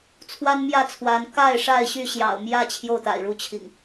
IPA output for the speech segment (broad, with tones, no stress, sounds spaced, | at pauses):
t͡sʰ w a˦ n m j ä˥˨ t͡sʰ w a˨˦ n k a˥˨ ɪ̯ ʂ a˥˨ ɪ̯ ɕ y˥˨ ɕ j ɑ̰˨˩ ʊ̯ m j ä˥˨ t͡ɕʰ j o˥˨ ʊ̯ t̪ a̰˨˩ ɪ̯ ɻ u˥˨ t͡ɕʰ ḭ˨˩ ŋ